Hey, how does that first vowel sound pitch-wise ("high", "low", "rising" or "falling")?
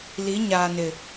rising